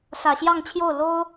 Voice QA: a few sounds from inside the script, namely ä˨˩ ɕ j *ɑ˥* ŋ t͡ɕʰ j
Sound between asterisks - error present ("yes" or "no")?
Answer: yes